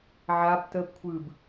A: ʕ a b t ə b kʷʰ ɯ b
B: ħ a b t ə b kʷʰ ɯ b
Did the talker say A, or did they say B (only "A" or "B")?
A